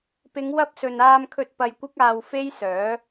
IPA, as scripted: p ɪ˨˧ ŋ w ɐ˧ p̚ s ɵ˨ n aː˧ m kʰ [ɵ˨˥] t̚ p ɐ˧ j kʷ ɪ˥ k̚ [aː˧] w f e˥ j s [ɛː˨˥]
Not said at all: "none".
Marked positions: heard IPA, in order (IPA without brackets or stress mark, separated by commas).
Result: ɵ˧, aː˧, œː˨˥